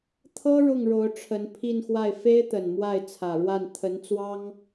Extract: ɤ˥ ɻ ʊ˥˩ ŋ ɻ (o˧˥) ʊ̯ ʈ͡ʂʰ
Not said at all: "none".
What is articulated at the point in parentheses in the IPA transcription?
o˧˥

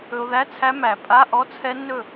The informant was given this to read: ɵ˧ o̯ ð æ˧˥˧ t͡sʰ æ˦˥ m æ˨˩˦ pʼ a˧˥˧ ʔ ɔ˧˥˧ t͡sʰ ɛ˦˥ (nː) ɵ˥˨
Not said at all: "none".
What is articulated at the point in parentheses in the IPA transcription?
nː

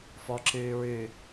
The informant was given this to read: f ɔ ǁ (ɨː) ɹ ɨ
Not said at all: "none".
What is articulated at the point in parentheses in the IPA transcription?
ɨː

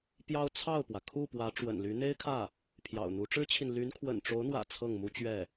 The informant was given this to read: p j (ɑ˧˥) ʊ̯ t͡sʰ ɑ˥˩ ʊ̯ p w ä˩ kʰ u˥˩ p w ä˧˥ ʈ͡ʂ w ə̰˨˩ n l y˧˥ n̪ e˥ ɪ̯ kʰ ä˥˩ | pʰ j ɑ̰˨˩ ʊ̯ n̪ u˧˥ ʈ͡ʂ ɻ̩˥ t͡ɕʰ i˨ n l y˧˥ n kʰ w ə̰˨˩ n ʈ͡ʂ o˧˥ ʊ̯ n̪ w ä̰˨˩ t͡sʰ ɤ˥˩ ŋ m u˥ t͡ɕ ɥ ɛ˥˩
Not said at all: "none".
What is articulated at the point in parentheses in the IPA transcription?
ɑ˥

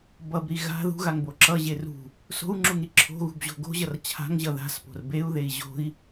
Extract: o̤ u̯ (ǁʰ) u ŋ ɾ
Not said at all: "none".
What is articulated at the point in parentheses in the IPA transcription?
ŋ͡ǁ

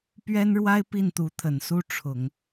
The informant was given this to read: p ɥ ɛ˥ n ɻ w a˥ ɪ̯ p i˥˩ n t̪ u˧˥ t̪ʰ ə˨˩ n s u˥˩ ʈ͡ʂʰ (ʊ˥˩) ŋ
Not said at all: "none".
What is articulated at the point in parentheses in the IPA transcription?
ʊ˨˩˦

